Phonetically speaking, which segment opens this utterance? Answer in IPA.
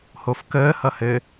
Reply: h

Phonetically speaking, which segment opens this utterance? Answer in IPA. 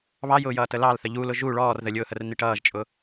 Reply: β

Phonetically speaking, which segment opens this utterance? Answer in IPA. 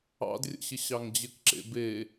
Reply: ɑ̰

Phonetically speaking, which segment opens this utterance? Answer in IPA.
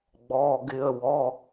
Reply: ɡ͡b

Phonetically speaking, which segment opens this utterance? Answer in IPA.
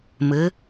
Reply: m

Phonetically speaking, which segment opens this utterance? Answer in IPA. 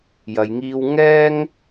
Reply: j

